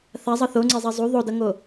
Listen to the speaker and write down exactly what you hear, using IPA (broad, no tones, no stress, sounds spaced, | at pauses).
θ a zˤ ʌ θ o ŋ͡ǀ e zˤ ɛ zˤ u ðˤ o d ʌ ŋ o